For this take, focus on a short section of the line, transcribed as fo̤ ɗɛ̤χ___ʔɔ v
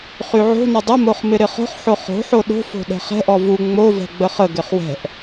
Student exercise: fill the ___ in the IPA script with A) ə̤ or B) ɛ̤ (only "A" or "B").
B